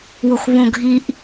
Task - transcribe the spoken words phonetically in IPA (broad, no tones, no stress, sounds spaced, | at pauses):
w o x β õ ɡʱ i ʔ